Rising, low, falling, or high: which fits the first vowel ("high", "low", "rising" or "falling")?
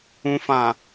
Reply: low